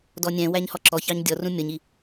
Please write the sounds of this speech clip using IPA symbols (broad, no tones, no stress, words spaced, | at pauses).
dɔnʲɛ̃wæɲ hɔǁɔçɑɲ dʲɔ rũmʲʌɲi